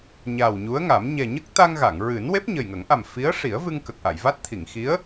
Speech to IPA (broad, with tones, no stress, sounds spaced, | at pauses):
ɲ a˨˩ w ɲ u˧˥ ə̯ ŋ a˨˩˦ m ɲ ɛ˨˩ ɲ ə˦˥ k̚ t̪ a˧ ŋ ɣ a˨˩˨ ŋ ɹ ɨ˨˩˦ n w e˦˥ p̚ ɲ ə˨˩ j ŋ ə˨˩˦ ŋ ʔ a˨˩ m f i˧˥ ə̯ ʂ i˨˩˦ ə̯ v ɨ˧ ŋ k ə˨˩ k̚ ʔ a˨˩˨ j v a˦˥ t̚ t̪ʰ i˨˩˨ ŋ x i˧˥ ə̯